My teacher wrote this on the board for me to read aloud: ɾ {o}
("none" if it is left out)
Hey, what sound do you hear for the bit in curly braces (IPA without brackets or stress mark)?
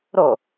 o